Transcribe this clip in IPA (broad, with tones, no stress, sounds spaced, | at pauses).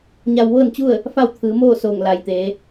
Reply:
ɲ a˧ w ʋ ɤː˥˨ n t͡ɕ u˥˨ ə̯ | f a˥˨ w t̪ʰ ɯː˩˧ m oː˥˨ s oː˧˩ ŋ l a˩ j t̪ eː˩˧